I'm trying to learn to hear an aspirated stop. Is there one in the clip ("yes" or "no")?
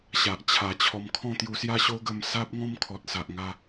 yes